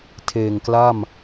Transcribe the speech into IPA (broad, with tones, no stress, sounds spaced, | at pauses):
tʰ eː˨˩ ŋ k l a˥˩ m